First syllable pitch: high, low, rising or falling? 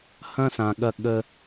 high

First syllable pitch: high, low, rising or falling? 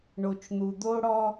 low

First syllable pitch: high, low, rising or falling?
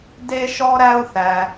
high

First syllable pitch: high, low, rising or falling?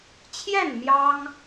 falling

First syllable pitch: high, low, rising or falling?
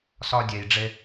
high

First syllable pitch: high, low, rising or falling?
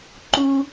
high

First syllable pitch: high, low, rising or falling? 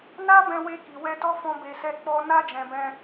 high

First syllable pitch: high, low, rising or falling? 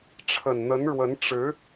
low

